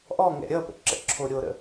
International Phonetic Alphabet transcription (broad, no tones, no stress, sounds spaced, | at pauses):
ʔ ɔ ŋ ɛ̰ ɾʲ ʌ p ə̰ ǁ ə̰ ǁʰ o ɾʲ o ɾ ə̰